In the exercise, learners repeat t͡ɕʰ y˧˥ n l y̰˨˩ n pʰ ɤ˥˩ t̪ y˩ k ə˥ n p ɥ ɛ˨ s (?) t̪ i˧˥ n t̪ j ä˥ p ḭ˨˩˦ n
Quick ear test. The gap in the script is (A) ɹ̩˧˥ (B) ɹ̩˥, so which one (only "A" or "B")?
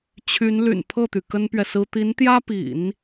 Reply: B